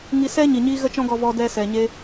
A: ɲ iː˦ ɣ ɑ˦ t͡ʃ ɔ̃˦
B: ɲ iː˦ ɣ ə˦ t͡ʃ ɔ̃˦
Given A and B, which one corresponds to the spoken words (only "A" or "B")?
B